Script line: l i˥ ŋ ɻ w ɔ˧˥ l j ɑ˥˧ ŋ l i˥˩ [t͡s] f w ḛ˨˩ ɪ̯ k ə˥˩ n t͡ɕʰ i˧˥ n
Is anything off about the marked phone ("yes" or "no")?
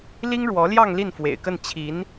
yes